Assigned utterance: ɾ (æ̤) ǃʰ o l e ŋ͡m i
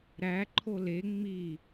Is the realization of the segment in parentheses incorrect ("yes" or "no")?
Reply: yes